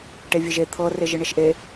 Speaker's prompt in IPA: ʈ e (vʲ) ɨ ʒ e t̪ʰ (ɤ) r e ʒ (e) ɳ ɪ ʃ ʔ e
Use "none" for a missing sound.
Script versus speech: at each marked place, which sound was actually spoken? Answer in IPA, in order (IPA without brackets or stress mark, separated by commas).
vʲ, ɤ, ɨ